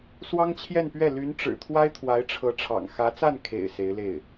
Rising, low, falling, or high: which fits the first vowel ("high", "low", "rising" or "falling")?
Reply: high